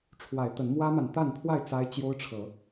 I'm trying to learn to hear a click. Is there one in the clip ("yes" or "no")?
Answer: no